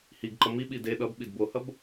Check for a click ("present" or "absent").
present